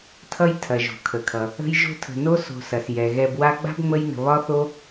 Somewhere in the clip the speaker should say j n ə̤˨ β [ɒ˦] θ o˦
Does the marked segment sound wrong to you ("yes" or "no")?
no